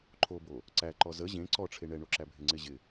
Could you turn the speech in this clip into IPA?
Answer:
ǃʰ o b o | ǀ æ ǃ ɔ z ə ʑ ẽ ǀ ɔ ʈ͡ʂʰ e ɳ ɛ ɳ o ǁ æ bʱ ɪ ŋ͡ǀ ɪ ʑ ɪ

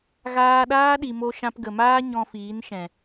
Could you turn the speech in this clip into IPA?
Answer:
ɣ aː˧ ɗ aː˦ ɗ i˨ m o˧ ʃ ã˧ p ɡ ə˨ m aː˦ ɲ ɔ̃˧ f iː˨˦ n ʃ ɛ̃˨

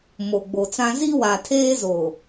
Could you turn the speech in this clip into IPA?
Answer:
m o˨ ɡ͡b o˨ t͡s ã˦ z i˦ w a˨ tʰ eː˦ z o˨

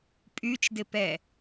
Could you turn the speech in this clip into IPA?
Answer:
pʼ y t͡ʃ d ɪ p ɛ

